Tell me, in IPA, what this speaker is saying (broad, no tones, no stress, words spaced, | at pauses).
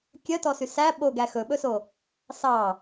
kʲœtɔsy sæ ɓoɡæ xɵɓɵso | sɑ